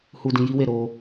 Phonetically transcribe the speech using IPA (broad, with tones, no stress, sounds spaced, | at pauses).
h u˧ d ĩ˧ j i˦ w e˦˨ ɾ o˧